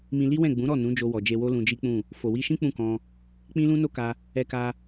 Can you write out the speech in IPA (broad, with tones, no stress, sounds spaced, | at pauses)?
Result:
m ĩ˧ l i˦ w ɛ̃˦˨ ɡ͡b ũ˨˦ ɾ ɔ˦˨ n ũ˨˦ d͡ʒ o˧ w ɔ˨ d͡ʒ e˧ w o˦ l ũ˧ d͡ʒ i˦ k͡p ũ˦˨ | f o˨ w i˧ ʃ ĩ˦ k͡p ũ˦˨ k ɔ̃˧ | k͡p ĩ˦ l ũ˦ n o˦ k a˧ | ɛ˧ k a˧